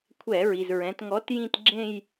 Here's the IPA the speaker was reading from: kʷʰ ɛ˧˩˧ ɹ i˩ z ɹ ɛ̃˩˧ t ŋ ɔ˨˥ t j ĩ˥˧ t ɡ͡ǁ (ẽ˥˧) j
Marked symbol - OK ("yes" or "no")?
yes